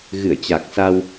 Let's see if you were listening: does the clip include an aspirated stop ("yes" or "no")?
no